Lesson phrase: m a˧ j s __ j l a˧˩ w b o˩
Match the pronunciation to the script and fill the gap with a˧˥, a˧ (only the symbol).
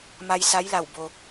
a˧˥